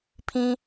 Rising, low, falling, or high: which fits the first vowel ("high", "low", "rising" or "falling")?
high